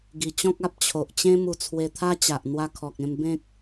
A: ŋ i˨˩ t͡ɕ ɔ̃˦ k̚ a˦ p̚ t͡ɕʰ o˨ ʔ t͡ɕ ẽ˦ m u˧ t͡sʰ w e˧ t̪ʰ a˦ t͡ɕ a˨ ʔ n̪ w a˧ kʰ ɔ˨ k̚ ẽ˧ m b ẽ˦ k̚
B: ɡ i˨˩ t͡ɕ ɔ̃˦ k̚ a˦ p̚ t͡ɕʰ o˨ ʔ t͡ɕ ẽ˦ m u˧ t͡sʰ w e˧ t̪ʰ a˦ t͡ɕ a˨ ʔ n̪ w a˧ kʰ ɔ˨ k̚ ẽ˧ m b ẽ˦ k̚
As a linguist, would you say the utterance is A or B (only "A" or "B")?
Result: B